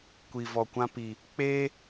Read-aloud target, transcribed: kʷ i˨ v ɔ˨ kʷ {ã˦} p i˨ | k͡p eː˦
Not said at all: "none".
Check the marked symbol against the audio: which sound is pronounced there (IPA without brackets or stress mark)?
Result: ã˦